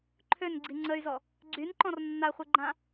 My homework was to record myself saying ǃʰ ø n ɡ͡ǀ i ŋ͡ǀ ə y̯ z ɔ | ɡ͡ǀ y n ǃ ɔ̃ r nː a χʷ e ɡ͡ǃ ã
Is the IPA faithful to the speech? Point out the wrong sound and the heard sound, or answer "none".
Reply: none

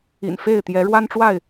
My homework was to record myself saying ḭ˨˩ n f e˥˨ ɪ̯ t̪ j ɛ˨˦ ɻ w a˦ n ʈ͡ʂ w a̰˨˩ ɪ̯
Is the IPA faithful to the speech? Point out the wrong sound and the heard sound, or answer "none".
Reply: a̰˨˩ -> a˥˨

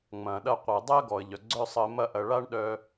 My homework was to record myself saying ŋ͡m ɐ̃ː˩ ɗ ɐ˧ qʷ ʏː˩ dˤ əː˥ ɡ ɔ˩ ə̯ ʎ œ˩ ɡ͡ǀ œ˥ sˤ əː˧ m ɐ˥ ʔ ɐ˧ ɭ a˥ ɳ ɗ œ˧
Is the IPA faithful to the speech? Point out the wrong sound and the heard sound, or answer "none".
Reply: ʏː˩ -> əː˩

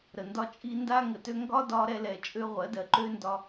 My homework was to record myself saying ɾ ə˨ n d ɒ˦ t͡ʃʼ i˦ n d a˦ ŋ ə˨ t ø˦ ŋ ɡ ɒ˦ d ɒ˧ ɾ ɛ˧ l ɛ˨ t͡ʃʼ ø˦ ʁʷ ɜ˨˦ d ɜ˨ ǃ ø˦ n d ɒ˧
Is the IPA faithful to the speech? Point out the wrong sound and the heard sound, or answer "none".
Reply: none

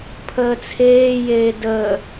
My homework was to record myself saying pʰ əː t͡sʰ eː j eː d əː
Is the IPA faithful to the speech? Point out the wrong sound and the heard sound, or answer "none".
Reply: none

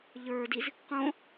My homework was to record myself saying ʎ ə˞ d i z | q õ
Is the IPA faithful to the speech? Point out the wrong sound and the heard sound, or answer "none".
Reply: none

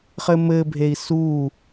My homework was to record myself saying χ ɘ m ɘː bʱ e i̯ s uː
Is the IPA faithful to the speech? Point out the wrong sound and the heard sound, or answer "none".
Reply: none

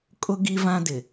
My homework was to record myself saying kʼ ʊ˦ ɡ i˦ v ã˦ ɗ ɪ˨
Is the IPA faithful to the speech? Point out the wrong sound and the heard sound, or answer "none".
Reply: ɗ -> d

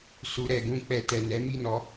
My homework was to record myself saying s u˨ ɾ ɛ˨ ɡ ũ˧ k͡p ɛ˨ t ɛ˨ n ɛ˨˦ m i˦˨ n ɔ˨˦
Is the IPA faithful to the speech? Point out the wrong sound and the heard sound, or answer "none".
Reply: none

